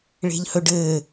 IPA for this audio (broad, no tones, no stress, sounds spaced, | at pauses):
ɭ e̤ ʎ h ɵ ɖ ɘː